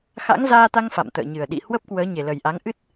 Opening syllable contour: rising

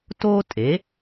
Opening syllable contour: high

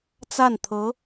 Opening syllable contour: falling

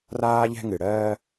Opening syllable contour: high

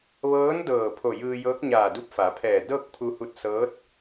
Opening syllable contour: rising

